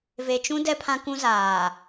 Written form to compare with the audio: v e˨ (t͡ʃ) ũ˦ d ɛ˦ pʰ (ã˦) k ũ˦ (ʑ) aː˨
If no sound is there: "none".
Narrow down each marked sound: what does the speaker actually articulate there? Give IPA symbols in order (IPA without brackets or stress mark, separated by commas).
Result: t͡ʃ, ã˦, z